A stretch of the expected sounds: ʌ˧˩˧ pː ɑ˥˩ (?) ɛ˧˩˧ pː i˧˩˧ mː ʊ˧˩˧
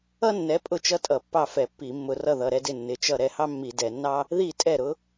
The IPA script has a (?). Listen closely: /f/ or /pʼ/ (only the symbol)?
f